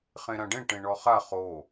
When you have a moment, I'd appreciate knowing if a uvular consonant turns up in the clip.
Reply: yes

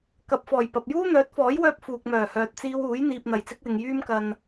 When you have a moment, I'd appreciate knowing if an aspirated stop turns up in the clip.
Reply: no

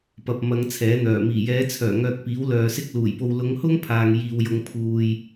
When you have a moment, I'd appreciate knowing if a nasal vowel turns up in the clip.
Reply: no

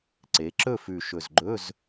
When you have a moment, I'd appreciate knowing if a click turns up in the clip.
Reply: yes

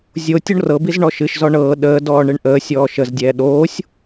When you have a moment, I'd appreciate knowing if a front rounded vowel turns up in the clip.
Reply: no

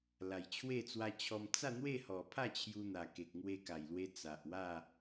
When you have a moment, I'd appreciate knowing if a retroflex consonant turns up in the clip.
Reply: no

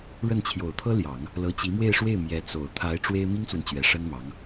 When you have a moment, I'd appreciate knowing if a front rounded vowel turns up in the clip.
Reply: no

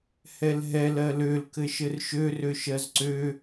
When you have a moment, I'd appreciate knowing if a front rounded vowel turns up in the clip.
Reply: yes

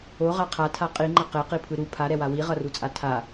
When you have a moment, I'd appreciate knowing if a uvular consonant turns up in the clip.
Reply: yes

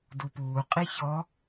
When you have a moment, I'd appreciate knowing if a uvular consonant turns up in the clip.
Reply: yes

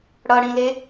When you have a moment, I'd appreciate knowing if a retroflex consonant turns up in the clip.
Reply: yes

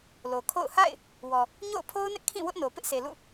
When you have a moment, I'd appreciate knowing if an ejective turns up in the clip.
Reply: no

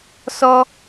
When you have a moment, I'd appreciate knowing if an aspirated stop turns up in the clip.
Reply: no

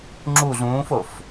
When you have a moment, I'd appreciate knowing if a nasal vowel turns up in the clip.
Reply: yes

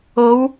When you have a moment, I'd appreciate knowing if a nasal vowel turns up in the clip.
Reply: no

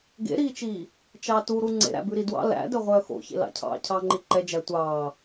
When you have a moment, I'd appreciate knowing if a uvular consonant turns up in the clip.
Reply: yes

